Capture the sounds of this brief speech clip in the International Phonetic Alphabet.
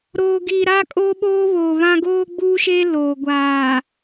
ɾ oː˨ ɡ iː˨ ɾ aː˦ kʼ oː˦ ɓ oː˦ β oː˨ β ã˦ ɡ oː˦ ɡ͡b uː˦ ʃ eː˦ l oː˨ ɡʷ aː˨

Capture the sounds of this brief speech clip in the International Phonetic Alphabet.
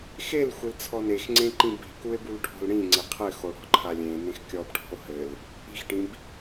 x e l xʷ ɘ l t͡sʰ ɔ n e x ŋ͡ǀ ẽ ǃ ĩ b i̤ k u e̯ b u l ʈʰ ɔ̤ l ɽ ĩ ŋ͡ǀ e qʰ ɘ x o ɽ ɔ̤ ǃʰ a lʲ ẽ n ẽ x kʲ ɔ b ʈʰ ɔ̤ o̯ h ɘ l | i̤ x ʈ ĩ b

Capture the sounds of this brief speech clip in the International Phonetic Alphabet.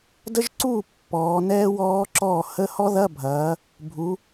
d ə˦˥ ʒ ǀ uː˥˩ pː ɔː˩˧ n ɛː˦˥ w ɔː˦˥ ǁ ɔː˥˩ h ə˧˥˧ h ɔ˦˥ ð ɐ˧˥˧ bʱ ɐː˩˧ | bʱ u˩˧

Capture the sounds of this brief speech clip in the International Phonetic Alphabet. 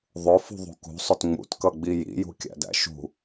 ðˤ ʊ f ṳ ðˤ ṳ k ṳ sˤ ʊ t ŋ͡m ṵ t k ʌ ɡ͡b i j ḭ j ṳ kʲ æ̰ d æ̰ ʃ ṳ

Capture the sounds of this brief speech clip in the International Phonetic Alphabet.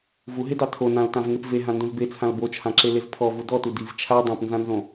v u ɦ e d ɑ tʰ o n ã l t ã v ŋ e p v e ɦ ã n d õ z b e t͡sʰ ã l b o t͡ʃʰ ã ǁ e l e z pʰ ɔ v u d ɔ t u d i v t͡ʃʰ a dˤ ã p n z ã n z õ

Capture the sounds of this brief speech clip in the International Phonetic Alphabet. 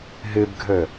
ɦ ɨ b ɡʱ ɵ

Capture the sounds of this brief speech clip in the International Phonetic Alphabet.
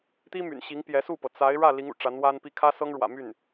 t̪ i˥ m y̰˨˩ n ɕ i˧˥ ŋ p j ɛ˧˥ s u˥˩ p ɤ˩ t͡s a˧˥ ɪ̯ ɻ ä˥˩ l i˧˥ ŋ ṵ˨˩ ʈ͡ʂ a˧˥ n w a˥ n p i˥˩ kʰ ä˥ s ɤ˥ ŋ ɻ w ä̰˨˩ m y˥˩ n

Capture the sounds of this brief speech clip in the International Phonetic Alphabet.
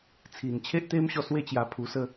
t͡sʰ i˨˩ n t͡ɕʰ e˦ ʔ t̪ e˦ m ɕ ɔ˧ s w e˦ t͡ɕ j a˧ pʰ u˧ s ə˥˧

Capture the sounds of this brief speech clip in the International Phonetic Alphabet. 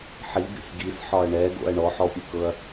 ħ i b ḭ s ɡ i s ħ ɒ ɐ̯ ɳ ɛ ɡ o̰ ɐ̯ ɳ ɔ ħ ɔ pʲ ɯ k ɤ ɐ̯

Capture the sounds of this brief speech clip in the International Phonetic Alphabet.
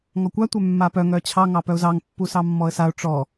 ŋ ɔ kʷ a tʷ œ mː a p œ ŋ œ t͡ɕʰ ɑ ŋ ɑ p œ ʊ̯ z ɑ ŋ pː u s ɑ mː ɔ ə̯ s a ʊ̯ ʈ͡ʂ ɔ

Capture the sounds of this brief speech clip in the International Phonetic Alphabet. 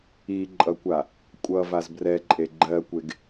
i ǃʼ ʌ kʷ a | kʷʼ ʌ v a z b r ɛ ǃʼ e ɡ͡ǃ ɜ kʷ e ɡ

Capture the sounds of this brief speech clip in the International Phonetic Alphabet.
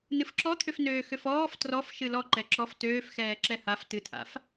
n ɨ f ǁ ɔ t̪ʰ ʏ f n øː x ʏ f ɔː f t r ɔ f ʃ ɨ l ɔ ǃ ɛ ǁ ɔ f t øː f x ɛː ǁ ɛ h a f t ɨ tʰ a̰ f

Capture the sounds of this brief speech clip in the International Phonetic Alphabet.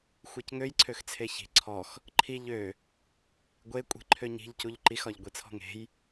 xʷ e c ŋ ø j ǀʰ ø x t͡sʰ e ç i̤ ǀʰ ɔ x | ǃʰ i ʎ ø | ɡʷ e kʷʼ i̤ ǃʰ ø ɲ i̤ ʎ c u ʎ ǃ i x ɒ ʎ ɡʷ i t͡sʰ ɔ̤ ŋ e̤ j

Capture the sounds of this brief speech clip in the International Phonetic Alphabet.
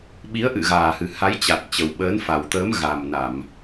ɓ i˨˦ ə̯ ʔ ɨ̰˧˨ ɣ aː˨˩ h ɨ˨˩ h a˨˦ j t͡ɕ a˨˩ t̚ t͡ɕ ə˨˩ w ɓ əː˨˦ n f a˨˩ w t̪ əː˨˦ m ɣ a˨˩ m n a˧˩˨ m

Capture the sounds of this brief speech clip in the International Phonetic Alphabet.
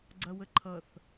ɡ͡ǀ ɐ w ə ǃʰ ʌ θ

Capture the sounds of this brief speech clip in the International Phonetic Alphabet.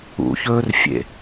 ṵ ç ɵː r fʲ ḛ

